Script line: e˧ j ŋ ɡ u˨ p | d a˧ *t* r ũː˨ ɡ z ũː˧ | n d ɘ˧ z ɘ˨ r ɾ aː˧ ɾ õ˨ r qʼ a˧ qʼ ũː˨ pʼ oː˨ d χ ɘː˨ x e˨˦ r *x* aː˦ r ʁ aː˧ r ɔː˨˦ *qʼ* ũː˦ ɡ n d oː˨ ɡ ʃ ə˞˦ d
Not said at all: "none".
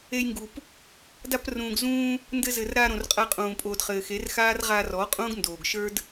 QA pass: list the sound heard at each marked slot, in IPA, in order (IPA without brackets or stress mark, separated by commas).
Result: p, x, qʼ